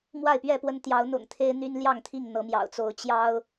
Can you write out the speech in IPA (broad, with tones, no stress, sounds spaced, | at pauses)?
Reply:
m w a˥˨ ɪ̯ p ɥ ɛ˥˨ p w ə˦ n t̪ j ɑ˨˦ ʊ̯ n̪ ʊ̰˨˩ ŋ t̪ʰ e˦ ɪ̯ n̪ y˦ n l j ɑ˥˨ ŋ t̪ʰ i˥˨ ŋ n̪ ɤ˨˦ m j ɑ̰˨˩ ʊ̯ t͡s o˨˦ ʊ̯ t͡ɕ j ɑ˦ ʊ̯